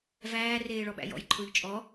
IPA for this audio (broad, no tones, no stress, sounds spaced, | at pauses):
v æː r eː ɭ ɔ ɓ æ̰ j ɔ̰ j ǃʰ ʊː ʎ t͡ʃʼ ɔ